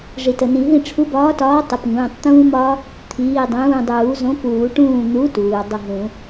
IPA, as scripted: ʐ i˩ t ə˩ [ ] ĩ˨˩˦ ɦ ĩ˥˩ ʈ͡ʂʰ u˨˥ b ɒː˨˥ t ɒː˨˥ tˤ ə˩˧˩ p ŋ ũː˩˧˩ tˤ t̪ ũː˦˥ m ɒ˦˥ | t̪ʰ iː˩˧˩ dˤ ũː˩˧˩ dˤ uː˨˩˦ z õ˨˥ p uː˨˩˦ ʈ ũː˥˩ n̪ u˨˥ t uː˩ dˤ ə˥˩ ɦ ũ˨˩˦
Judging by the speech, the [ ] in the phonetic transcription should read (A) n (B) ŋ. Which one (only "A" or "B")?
A